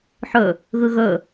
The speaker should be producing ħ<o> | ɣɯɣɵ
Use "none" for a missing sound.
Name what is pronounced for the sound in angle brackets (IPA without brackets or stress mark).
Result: ɵ